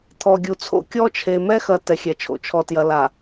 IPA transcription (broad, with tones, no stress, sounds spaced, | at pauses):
t̪ʰ ɔ˨ ɡʲ u˨ t͡sʰ o̰˦ kʲ ɔ˦ t͡ʃʰ e˨ m ɛ˦ x ɐ˨ t ɛ˨ xʲ ɛ˨ t͡ʃʰ o̰˨ t͡ʃʰ ɔ˨ t j ɐ˨ l a˨